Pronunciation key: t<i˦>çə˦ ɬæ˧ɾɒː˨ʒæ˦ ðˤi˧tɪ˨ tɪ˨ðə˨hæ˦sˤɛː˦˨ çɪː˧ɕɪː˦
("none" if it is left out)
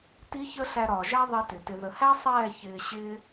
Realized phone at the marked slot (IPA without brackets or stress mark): i˦